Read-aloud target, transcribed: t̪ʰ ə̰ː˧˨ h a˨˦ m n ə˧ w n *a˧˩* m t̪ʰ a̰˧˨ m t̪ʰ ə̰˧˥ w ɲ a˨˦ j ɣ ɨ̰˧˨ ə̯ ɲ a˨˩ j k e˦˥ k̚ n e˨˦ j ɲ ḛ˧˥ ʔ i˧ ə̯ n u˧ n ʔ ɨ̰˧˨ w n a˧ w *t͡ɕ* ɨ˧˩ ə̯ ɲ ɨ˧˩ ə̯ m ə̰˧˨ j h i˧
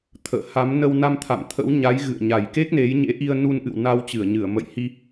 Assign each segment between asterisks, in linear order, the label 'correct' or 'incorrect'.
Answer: incorrect, correct

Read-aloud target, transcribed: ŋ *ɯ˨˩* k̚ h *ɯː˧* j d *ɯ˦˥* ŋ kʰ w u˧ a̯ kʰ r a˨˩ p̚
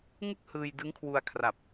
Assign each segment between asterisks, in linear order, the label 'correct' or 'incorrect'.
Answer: incorrect, correct, correct

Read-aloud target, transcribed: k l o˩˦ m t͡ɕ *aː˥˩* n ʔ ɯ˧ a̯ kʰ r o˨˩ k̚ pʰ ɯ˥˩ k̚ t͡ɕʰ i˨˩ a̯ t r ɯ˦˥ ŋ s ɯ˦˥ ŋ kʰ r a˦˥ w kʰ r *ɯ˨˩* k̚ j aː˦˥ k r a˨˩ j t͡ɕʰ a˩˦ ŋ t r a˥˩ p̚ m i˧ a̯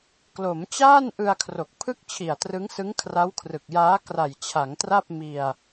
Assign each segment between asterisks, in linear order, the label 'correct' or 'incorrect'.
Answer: correct, correct

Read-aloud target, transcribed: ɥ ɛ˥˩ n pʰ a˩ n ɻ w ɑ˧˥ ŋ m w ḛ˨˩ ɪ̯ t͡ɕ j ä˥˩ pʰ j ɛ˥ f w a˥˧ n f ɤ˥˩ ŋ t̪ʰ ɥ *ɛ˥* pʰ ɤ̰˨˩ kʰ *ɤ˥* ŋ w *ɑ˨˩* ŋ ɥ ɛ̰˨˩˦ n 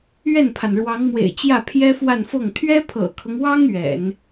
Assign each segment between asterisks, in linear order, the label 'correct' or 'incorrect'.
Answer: correct, incorrect, incorrect

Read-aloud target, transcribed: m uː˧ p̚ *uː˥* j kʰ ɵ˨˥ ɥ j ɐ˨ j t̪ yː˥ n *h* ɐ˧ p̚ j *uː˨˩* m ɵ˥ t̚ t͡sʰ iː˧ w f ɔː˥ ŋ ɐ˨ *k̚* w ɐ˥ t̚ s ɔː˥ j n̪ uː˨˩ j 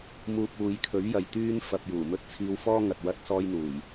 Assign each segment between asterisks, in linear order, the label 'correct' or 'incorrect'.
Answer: incorrect, incorrect, correct, incorrect

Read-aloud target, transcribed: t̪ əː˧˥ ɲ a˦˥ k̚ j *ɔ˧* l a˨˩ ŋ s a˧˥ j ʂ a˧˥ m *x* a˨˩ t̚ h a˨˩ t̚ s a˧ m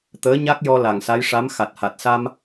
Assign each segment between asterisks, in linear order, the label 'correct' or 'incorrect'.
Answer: correct, correct

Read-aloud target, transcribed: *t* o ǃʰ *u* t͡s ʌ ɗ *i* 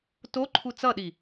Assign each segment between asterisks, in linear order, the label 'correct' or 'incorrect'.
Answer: correct, correct, correct

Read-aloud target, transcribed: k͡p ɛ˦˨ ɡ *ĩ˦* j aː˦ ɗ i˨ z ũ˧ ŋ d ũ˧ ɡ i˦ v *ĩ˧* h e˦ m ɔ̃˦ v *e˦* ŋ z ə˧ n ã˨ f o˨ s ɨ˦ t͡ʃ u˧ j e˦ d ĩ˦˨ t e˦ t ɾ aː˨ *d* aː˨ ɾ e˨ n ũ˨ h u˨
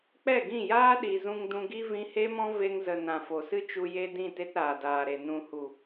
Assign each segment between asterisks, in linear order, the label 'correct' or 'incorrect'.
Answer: incorrect, correct, correct, correct

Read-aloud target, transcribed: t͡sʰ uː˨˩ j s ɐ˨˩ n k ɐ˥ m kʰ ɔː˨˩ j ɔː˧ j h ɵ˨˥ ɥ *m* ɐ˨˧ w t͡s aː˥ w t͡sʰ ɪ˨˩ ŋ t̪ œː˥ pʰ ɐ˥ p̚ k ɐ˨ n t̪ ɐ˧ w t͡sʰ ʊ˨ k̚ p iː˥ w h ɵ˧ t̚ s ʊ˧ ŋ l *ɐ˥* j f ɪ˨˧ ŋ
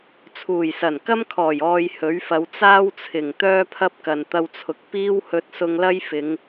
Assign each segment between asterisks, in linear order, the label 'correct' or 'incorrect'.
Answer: incorrect, correct

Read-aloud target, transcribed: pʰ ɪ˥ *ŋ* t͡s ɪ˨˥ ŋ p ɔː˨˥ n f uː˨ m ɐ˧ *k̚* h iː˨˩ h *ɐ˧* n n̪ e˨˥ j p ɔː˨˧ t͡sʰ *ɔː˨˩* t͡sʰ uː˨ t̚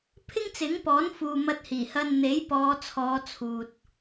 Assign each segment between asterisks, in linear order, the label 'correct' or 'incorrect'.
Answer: correct, incorrect, correct, incorrect

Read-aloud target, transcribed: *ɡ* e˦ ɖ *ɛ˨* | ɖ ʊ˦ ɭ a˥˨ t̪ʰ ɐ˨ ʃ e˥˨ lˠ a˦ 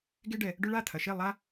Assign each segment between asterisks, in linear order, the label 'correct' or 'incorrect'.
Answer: correct, correct

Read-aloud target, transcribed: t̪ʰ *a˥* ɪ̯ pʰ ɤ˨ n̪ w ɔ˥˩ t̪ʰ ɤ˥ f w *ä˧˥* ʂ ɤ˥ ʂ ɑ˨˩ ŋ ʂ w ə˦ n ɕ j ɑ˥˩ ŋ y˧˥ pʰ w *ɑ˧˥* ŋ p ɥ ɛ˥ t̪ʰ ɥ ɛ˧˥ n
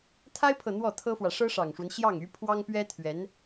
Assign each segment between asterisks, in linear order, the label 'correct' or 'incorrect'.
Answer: correct, incorrect, incorrect

